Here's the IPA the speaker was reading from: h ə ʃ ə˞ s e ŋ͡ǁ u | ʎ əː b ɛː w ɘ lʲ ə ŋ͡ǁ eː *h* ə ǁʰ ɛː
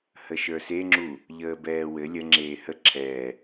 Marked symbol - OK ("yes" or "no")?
yes